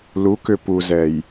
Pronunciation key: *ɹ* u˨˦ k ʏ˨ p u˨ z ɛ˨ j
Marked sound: incorrect: l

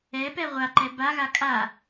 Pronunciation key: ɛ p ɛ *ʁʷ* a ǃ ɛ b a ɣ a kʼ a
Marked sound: correct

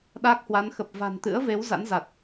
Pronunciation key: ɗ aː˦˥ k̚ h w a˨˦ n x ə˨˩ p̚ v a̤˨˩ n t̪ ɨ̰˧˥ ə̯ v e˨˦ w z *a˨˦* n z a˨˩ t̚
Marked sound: incorrect: a̰˧˥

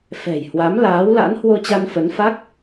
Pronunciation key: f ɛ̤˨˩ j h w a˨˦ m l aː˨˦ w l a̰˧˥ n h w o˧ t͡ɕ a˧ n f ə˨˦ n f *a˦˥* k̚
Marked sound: correct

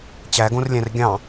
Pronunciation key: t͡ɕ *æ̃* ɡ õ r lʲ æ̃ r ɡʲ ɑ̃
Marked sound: incorrect: æ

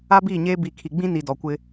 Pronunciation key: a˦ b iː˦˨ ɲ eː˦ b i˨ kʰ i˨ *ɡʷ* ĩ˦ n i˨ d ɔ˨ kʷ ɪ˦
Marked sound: incorrect: ɡ͡b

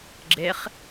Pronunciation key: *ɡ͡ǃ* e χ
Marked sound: incorrect: ɡ͡ǁ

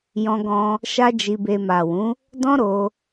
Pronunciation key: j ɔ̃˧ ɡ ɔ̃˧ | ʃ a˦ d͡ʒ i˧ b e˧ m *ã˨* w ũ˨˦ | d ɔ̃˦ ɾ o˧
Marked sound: incorrect: a˨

